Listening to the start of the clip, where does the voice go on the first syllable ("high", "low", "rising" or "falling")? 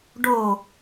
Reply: falling